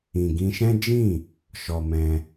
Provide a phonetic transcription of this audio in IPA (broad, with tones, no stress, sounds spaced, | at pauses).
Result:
ĩ˨ ɡ ĩ˧ ʃ ɛ̃˦ d͡ʒ ĩ˦˨ | ʃ ɔ˧ m ɛ̃˧